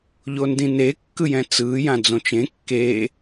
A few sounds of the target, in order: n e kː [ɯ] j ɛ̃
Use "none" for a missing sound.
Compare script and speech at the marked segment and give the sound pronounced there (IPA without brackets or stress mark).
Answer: ɯ